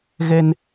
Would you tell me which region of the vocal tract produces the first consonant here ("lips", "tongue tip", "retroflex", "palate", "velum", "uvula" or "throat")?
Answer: velum